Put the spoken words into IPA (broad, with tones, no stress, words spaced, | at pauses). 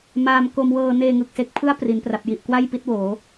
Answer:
maː˧m ko˧mwɤː˧ neː˧ŋɯ˨˩k̚se˦˥k̚pʰɯ˥˩a̯ pri˩˦npra˨˩p̚ji˨˩ʔ kwa˥˩jpi˦˥t̚woː˩˦